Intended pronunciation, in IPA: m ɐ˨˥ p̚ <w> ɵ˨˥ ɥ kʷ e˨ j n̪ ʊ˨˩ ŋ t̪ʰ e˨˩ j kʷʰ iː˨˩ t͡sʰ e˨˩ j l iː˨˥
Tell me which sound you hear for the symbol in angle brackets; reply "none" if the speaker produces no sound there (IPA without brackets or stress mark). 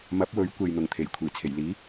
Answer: w